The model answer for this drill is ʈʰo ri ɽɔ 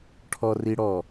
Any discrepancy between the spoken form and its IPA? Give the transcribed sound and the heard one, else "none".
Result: o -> ɔ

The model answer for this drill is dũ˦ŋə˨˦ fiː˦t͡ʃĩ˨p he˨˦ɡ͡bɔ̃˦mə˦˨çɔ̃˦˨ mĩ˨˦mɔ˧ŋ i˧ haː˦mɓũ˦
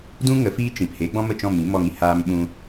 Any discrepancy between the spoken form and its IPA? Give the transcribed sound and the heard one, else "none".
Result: ç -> t͡ʃ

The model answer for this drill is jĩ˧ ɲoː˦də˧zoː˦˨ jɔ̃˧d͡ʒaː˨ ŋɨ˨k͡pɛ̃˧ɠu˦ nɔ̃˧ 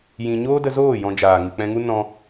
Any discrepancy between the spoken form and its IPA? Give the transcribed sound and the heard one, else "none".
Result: ɠ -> ŋ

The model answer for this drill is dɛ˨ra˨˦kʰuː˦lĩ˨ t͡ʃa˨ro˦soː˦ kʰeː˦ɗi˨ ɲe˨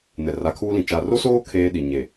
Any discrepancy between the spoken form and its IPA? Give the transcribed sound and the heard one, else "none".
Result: d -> n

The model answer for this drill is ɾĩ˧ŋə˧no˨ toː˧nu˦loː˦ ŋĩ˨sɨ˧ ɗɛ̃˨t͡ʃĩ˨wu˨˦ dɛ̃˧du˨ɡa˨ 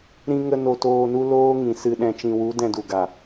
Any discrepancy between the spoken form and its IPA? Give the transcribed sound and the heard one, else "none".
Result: none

